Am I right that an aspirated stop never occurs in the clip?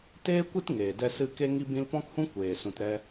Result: yes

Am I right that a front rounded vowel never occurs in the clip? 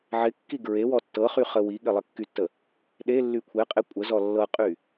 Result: no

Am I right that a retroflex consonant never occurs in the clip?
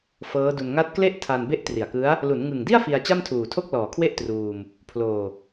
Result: yes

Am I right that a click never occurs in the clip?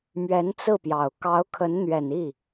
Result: yes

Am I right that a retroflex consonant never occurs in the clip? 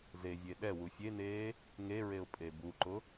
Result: yes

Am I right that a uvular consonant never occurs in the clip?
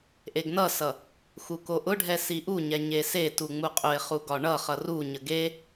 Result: no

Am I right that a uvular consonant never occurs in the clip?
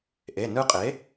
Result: no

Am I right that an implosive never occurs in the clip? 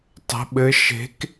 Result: no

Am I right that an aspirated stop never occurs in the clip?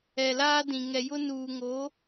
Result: yes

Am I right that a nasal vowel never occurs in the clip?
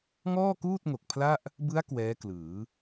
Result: yes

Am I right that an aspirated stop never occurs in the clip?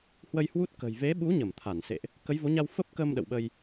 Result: no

